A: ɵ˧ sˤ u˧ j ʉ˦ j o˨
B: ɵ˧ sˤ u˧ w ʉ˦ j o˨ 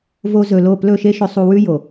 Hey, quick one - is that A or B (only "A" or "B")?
B